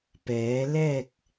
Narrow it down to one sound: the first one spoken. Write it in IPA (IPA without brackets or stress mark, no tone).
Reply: p